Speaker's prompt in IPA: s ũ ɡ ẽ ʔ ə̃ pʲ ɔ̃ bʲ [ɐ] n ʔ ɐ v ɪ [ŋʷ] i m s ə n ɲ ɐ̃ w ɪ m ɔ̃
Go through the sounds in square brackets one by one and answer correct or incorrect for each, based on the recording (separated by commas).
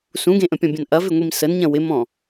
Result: incorrect, correct